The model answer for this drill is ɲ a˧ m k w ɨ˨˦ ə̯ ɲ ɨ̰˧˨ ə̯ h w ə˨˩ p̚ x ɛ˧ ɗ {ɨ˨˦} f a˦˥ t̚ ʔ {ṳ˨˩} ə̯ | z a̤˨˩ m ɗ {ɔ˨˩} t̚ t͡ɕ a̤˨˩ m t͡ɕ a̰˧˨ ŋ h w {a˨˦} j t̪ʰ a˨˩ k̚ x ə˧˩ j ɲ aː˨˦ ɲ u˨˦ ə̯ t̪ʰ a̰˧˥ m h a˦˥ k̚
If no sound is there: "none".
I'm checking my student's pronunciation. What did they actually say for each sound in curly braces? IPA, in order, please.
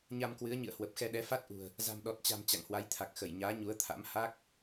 ɛ˨˦, ṳ˨˩, ɔ˨˩, a˨˦

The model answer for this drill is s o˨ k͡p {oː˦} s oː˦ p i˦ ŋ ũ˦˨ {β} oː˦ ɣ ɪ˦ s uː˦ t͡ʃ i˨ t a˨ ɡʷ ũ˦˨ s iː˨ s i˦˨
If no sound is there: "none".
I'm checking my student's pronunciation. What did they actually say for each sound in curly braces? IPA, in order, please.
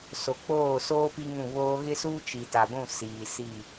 oː˦˨, β

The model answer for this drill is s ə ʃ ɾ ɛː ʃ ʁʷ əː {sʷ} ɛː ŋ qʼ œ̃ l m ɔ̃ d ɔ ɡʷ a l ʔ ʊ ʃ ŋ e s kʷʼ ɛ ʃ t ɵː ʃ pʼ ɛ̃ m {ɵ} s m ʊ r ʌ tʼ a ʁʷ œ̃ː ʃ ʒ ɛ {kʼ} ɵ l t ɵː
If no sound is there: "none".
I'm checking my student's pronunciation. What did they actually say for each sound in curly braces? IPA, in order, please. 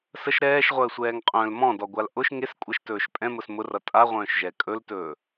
sʷ, ʊ, kʼ

